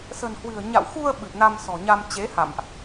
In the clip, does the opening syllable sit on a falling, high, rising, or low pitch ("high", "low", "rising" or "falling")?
low